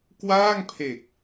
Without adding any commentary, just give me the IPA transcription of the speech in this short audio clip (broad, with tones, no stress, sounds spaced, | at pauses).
k w aː˥˩ ŋ pʰ e˨˩ k̚